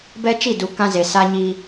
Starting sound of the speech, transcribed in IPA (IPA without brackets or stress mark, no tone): b